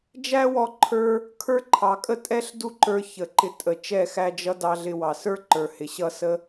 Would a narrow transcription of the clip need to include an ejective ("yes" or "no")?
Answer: yes